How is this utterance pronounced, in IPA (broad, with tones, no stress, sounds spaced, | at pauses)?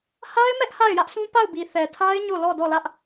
h a˦ ɪ̯ m ɛ˦ ʔ h a˦˨ ɪ̯ j ä˦ ʔ sʰ ũ˦ p a˦˨ ʊ̯ b i˨ θ ɛ˨ tʰ a˦ ɪ̯ ɲ o˦˨ l ɔ˦˨ d ɔ˦˨ l ä˦ ʔ